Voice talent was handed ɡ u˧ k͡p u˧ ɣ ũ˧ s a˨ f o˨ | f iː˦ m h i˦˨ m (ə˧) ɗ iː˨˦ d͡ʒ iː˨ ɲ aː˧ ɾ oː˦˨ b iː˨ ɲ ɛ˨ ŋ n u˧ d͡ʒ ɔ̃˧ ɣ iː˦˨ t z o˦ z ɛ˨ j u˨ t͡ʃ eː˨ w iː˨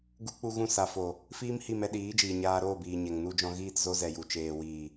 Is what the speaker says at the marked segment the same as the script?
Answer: no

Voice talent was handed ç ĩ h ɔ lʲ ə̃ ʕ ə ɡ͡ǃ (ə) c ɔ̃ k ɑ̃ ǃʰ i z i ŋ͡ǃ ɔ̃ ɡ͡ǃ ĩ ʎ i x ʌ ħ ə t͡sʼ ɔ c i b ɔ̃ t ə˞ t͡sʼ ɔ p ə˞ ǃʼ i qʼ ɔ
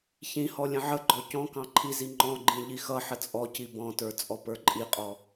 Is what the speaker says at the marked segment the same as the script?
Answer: no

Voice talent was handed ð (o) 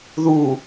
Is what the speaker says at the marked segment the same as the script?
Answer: no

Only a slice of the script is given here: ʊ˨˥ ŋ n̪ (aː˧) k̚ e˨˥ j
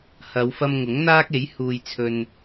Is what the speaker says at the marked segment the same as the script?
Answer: no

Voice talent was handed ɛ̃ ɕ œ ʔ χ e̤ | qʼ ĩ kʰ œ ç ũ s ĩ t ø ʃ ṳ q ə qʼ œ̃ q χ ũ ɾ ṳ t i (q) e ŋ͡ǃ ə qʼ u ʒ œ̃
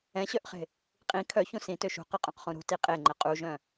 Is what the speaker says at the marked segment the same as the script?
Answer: no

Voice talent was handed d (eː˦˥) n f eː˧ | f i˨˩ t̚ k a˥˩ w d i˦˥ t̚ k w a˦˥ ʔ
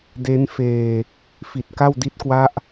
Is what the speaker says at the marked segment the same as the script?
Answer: no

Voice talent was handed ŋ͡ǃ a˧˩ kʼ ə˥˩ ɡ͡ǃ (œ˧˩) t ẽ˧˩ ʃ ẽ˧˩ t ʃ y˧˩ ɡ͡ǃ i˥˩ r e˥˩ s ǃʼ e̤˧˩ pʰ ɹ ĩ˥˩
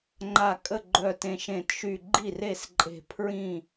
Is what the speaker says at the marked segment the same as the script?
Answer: yes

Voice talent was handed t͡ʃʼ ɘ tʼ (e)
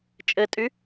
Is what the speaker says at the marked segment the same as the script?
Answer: no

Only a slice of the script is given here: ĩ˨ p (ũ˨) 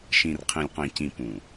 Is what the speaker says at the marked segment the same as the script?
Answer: yes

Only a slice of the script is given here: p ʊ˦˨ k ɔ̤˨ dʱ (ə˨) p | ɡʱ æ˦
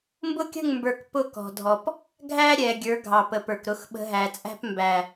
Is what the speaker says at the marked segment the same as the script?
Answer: no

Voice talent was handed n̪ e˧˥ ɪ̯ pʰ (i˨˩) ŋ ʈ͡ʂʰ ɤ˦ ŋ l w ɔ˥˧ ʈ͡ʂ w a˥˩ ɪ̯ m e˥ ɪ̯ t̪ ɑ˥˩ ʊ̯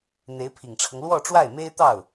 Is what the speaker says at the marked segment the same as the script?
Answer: yes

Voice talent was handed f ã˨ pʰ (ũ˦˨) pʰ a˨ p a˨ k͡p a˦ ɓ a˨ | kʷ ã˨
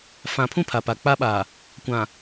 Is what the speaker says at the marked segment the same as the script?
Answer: yes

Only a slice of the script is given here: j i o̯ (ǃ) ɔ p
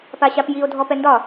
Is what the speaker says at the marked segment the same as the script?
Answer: no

